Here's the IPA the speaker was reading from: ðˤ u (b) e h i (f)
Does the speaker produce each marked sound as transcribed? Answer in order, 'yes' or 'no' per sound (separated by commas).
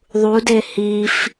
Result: no, yes